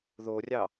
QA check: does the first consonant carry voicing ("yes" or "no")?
yes